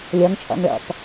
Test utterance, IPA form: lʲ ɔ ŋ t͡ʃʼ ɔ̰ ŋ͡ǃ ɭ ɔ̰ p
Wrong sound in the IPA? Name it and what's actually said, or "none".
ŋ͡ǃ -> ŋ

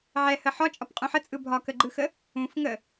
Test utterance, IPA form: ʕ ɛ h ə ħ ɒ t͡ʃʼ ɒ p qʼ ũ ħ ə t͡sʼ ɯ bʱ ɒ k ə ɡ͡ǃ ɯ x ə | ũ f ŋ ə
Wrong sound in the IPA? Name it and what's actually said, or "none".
none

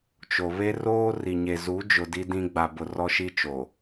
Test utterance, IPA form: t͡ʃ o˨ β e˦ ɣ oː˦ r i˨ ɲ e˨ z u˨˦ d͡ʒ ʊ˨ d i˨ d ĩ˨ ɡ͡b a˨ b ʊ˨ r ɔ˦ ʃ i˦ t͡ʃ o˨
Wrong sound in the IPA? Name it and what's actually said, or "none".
ɣ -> r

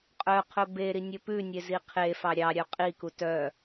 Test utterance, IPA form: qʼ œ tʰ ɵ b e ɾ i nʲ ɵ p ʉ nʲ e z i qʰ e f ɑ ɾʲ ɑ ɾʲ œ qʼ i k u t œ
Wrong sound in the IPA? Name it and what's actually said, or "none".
tʰ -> qʰ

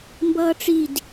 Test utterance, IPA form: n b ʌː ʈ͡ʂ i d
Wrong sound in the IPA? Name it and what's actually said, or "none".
n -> m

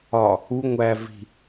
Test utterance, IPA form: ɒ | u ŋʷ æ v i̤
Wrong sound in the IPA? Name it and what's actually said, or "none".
none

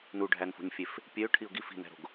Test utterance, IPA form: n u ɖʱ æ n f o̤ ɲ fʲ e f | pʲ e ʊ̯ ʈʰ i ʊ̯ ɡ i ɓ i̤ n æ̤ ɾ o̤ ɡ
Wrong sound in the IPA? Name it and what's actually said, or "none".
ɓ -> f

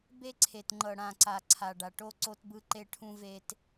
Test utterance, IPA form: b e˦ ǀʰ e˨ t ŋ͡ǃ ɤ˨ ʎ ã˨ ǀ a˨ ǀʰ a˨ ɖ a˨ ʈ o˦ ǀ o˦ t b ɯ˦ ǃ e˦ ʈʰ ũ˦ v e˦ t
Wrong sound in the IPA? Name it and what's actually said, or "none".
ʎ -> ɽ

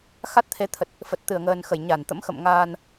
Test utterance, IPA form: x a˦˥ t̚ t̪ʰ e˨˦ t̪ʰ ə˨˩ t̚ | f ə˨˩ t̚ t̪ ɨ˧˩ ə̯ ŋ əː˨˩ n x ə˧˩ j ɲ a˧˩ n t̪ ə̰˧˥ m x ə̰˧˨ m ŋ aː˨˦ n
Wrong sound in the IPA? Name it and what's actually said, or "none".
aː˨˦ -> aː˧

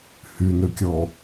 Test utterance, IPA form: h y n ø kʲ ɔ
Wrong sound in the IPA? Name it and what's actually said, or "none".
none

